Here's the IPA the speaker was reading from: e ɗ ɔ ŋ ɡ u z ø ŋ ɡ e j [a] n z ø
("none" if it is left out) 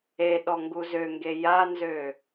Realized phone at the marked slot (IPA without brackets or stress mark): a